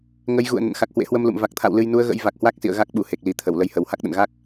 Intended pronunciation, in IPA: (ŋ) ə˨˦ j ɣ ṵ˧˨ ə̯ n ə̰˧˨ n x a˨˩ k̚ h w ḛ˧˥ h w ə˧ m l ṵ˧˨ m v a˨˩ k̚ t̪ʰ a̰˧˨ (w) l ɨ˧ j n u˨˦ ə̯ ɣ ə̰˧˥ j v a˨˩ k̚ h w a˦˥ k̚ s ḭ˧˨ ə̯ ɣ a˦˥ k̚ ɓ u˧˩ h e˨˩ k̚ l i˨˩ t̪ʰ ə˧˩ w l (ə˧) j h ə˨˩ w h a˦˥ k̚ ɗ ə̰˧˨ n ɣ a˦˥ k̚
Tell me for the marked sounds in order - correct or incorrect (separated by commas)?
correct, correct, correct